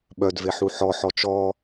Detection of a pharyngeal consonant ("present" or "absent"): present